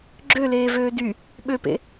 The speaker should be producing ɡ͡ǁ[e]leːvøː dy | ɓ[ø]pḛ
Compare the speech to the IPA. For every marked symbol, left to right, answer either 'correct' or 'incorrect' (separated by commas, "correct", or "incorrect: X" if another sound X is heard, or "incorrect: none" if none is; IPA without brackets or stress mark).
incorrect: ø, correct